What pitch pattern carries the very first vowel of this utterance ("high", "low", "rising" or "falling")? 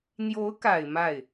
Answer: rising